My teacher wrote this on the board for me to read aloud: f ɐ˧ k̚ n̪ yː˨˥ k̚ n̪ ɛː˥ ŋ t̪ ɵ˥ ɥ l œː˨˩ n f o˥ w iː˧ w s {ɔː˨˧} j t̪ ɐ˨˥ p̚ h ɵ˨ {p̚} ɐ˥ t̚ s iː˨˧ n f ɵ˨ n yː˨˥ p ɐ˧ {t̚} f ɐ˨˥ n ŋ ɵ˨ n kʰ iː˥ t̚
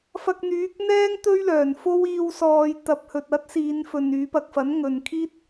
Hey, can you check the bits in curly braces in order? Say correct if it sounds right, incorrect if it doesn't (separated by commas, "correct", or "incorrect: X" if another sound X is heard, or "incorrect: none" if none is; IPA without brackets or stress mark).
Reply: correct, incorrect: t̚, incorrect: k̚